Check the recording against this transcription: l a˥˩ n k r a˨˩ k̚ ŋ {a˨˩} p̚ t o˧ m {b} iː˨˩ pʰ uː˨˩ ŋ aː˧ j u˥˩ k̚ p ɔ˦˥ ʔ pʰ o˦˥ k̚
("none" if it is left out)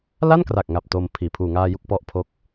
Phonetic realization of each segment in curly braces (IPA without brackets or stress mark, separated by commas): a˨˩, pʰ